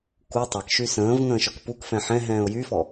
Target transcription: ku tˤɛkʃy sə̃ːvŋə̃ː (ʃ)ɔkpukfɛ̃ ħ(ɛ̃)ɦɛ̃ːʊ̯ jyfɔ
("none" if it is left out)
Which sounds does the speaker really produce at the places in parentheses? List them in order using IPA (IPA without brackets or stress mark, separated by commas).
ʃ, ɛ̃